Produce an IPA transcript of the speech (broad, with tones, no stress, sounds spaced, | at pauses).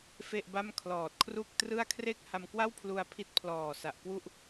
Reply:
f e˥˩ ʔ b a˥˩ m kʰ l ɔː˨˩ t̚ kʰ r u˥˩ k̚ t r ɯ˥˩ a̯ kʰ r e˥˩ k̚ h a˧ m k w a˥˩ w pʰ l u˧ a̯ pʰ i˦˥ t̚ pʰ l ɔː˨˩ s a˨˩ ʔ k w u˥˩ ʔ